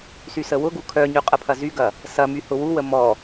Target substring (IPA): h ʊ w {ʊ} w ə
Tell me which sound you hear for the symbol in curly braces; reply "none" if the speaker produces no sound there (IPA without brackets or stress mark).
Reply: u